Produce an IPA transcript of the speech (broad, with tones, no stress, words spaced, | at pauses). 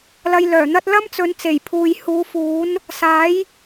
lɐ˧jlœː˨˩n̪ɐ˥t̚ lɐ˥mt͡sɵ˨˧n t͡se˨˩jpʰuː˨j huː˨˧fuː˨˥n | saː˨˥j